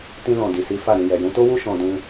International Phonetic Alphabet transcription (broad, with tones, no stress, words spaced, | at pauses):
tĩ˧lɔ̃˨di˨si˨˦ fa˦˨ɾĩ˧ jɛ˨jũ˨˦to˦wu˦ ʃɔ̃˧dũ˧